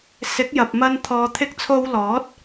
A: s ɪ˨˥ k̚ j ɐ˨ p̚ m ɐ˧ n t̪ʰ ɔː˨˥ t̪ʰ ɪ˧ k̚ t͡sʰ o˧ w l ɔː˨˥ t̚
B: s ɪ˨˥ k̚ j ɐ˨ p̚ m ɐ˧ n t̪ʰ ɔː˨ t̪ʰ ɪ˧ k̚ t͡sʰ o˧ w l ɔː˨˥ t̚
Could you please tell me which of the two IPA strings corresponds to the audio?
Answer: B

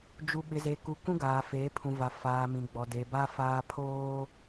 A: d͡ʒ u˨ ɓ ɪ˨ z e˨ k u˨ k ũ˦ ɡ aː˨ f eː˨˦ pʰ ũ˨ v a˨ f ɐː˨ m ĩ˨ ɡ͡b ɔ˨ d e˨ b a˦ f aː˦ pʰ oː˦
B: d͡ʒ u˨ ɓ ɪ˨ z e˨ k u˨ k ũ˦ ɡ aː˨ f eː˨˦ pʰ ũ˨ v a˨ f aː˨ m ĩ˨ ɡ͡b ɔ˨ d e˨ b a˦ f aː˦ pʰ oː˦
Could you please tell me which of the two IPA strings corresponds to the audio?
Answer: B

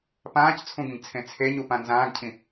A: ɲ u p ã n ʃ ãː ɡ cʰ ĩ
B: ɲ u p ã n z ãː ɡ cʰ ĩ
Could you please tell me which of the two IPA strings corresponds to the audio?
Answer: B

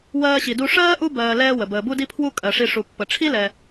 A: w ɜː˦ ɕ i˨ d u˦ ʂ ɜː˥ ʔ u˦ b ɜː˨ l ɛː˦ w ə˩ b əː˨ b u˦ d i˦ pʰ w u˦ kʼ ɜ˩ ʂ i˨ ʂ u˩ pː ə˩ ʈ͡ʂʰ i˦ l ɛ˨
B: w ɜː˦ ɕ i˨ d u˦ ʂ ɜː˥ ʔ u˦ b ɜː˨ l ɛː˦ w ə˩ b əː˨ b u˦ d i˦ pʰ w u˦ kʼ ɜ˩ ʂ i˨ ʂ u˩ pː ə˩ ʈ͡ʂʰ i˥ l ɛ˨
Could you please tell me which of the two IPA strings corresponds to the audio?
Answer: A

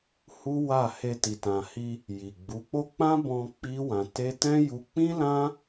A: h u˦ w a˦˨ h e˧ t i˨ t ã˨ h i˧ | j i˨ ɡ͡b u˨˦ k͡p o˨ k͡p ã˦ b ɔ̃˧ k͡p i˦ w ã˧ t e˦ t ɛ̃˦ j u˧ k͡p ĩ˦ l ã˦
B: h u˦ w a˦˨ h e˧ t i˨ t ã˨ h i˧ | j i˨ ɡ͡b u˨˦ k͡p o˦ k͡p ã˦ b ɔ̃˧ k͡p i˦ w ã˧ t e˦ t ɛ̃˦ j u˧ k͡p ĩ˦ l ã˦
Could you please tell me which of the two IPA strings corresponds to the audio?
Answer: B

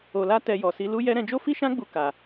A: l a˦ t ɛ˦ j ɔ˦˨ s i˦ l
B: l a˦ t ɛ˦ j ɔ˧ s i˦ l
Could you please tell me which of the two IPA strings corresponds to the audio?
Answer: B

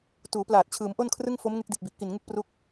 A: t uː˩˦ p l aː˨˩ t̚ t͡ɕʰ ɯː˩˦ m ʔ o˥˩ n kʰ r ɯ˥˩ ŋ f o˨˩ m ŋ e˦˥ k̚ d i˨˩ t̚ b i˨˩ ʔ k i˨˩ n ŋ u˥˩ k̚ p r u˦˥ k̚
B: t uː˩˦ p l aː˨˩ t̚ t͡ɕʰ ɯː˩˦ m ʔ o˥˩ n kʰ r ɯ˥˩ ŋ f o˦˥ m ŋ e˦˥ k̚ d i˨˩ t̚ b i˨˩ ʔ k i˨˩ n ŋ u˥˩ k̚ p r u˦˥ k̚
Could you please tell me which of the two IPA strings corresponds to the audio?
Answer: B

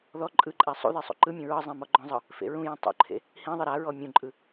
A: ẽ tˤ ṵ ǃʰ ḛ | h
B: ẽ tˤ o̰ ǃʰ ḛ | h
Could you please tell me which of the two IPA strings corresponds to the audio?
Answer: A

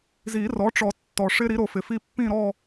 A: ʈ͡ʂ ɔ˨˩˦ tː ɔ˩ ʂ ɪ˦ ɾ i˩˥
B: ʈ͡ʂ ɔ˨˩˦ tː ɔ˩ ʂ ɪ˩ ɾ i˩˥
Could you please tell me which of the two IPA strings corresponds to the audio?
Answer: A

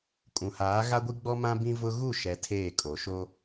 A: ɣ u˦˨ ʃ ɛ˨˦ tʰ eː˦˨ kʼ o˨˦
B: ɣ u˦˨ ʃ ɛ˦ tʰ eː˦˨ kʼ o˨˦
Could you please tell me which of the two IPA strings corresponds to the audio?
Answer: A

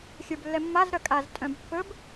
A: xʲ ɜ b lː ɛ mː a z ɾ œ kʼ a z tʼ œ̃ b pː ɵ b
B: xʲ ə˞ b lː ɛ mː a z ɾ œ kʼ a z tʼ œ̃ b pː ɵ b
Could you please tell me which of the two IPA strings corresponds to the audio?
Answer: B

